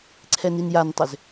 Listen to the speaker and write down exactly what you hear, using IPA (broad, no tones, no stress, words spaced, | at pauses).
ǀʰɛninjantˤʏz